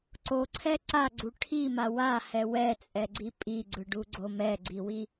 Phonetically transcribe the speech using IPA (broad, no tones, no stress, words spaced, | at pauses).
ǀoǀʰɛ ǀaɡ͡ǀu ʈʰima wahɛ wɛt͡sʼɛɡ͡ǀi pʼiɡ͡ǀɯɖuɡ͡ǀo mɛɡ͡ǀiwi